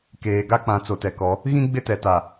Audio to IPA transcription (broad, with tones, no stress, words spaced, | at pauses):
keː˨ ɡa˦k͡pã˨˦ t͡so˨tɛ˨kɔ˨˦ | ɣĩ˦ ɡ͡bɪ˦tɛ˨ta˨